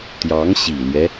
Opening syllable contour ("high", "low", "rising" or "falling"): rising